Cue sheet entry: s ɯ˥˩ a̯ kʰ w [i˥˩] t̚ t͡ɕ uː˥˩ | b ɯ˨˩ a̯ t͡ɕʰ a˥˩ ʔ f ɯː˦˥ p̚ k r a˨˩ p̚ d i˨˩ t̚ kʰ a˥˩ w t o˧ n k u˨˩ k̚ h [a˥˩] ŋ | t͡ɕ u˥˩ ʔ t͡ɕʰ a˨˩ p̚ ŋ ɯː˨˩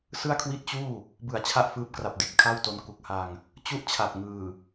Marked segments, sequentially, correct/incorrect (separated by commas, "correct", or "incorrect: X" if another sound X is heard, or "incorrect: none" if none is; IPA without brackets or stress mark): correct, incorrect: a˧